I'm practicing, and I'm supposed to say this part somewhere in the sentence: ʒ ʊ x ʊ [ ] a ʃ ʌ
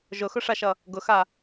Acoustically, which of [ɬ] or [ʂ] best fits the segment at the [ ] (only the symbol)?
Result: ʂ